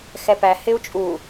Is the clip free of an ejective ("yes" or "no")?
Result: no